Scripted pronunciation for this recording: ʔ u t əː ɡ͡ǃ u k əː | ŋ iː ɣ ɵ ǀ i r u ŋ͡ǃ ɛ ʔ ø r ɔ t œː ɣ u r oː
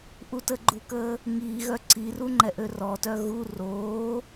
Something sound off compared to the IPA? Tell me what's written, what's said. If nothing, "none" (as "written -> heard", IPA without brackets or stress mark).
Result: ɵ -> œ